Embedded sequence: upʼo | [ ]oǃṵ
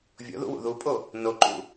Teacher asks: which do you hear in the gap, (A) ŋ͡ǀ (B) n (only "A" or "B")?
B